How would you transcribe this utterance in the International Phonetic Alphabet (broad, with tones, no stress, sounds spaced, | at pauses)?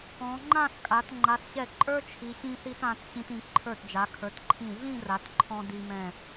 ɔ̃˩˧ ŋ͡ǃ ã˥˧ s kʼ a˩˧ t ŋ͡ǃ a˩˧ s ɕ ɛ˧˩ ǃʼ ə˞˥ t͡ʃʰ i˩˧ ɕ ĩ˧ θ i˧ t ã˩˧ t ɕ ĩ˧ t ĩ˩˧ ǃʰ ə˞˧˩ t d͡ʒ a˩˧ kʰ ə˞˩˧ t ǃʰ ĩ˧˩ ɮ ĩ˥˧ r a˩˧ t ǃʰ ɔ̃˧ d i˧ m ɛ̃˧˩